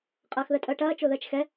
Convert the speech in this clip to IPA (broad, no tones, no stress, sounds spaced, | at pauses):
qʼ ɐː x ð ə tʼ əː ʈ ɐː t͡ʃ o ð əː t͡ʃ x ɛ